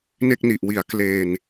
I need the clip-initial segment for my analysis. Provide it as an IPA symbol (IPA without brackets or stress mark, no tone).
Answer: n